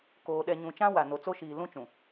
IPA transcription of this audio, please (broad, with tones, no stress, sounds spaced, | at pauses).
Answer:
k oː˨ ɗ ɛ˨ ɲ ũ˨ t͡ʃ ã˦ w a˨ n o˨ t͡s o˦ ʃ iː˨ l ũ˦ t͡ʃ ũ˨